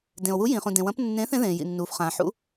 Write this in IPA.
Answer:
d ẽ˩ o̯ w u˨˦ j ĩ˩ χ ũ˩ d ẽ˩ w ɐ̃˨˦ p nː ẽː˨˦ θ ẽ˨˦ ð ẽː˩ j ḭ˩ nː uː˩ f χ ãː˩ ħ ṵ˨˦

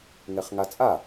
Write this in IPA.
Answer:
ŋ ɛ χ ŋ a t͡sʼ a

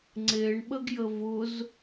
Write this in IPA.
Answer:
ŋ͡ǀ e ɳ ɓ ə ɡ j ə v ʊ z

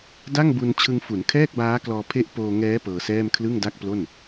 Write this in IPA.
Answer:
d a˥˩ ŋ b u˧ n t͡ɕʰ ɯ˧ ŋ f u˩˦ n kʰ ɛː˥˩ k̚ b aː˦˥ k l ɔː˧ pʰ e˦˥ ʔ p oː˧ ŋ ɛː˦˥ p ɤː˧ s ɛː˥˩ m kʰ l ɯ˥˩ ŋ d a˥˩ k̚ p l o˥˩ n

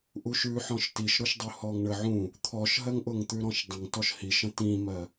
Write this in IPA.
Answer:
ʔ u ʃ ʉ ħ ɔ̃ ʃ t i ʃ ɾ ʊ ʃ dˤ u h ɔ ŋ ɳ ə ʕ ũ | t̪ʰ ɔ ʃ ɦ ɜ ŋ ʔ ʊ ŋ t̪ ʉ ɾ ɔ̃ ʃ dˤ ə̃ ŋ t ɔ ʃ h i ʃ ə̃ t ĩ m ɜ

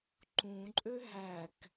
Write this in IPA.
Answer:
ǃ ũ ǃʼ ø ɦ æ k

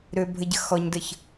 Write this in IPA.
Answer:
ɾ ø bʱ ə ɟ ə x ɔ ɲ d ə ç

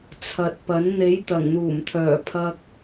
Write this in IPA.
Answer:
t͡sʰ ɐ˨ t̚ p ɐ˨˥ n n̪ e˨˥ j t̪ ɐ˨˩ ŋ n̪ uː˨˩ m t̪ʰ œː˨˩ pʰ ɐ˧ k̚

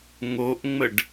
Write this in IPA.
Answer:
ŋ o ʔ ŋ͡m ə ɖ

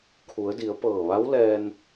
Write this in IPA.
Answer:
kʰ u˩˧ ə̯ d i˩˧ ə̯ p ɤː˧˩ ʋ a˧˥ w l ɛː˧ n

